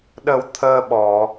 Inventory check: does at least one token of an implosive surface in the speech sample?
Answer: yes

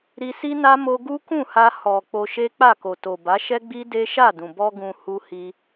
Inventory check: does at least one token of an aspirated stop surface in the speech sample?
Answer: no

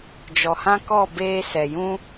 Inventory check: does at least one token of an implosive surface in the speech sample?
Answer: no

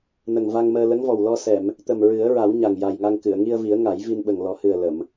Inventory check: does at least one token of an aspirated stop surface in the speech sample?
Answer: no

